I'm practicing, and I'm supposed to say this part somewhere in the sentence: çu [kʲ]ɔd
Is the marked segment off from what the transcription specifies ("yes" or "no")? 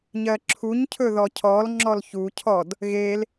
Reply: yes